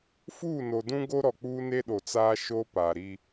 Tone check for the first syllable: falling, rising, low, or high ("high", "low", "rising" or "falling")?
falling